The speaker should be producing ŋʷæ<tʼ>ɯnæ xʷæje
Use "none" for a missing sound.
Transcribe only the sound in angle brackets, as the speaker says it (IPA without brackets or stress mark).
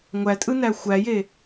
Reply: tʼ